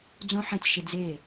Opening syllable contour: high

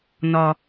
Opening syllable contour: high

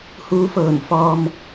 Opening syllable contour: rising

